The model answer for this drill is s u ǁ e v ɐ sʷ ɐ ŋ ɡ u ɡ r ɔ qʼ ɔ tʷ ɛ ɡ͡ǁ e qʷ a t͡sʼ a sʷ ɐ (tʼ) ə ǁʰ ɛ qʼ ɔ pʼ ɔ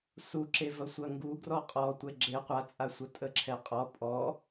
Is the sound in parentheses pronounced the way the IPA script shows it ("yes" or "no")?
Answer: yes